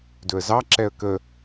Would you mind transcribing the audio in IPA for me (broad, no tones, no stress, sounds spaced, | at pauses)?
d ɵ ə̯ z ɑ ǁ ɛ ə̯ k ə